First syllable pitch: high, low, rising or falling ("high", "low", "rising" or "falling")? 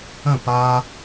falling